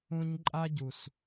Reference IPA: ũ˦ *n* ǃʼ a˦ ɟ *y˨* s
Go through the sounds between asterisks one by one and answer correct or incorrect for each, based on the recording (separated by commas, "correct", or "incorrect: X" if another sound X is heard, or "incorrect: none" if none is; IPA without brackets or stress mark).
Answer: incorrect: ɲ, incorrect: u˨